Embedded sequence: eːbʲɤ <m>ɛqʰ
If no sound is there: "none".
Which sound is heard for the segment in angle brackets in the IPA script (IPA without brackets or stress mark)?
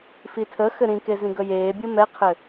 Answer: m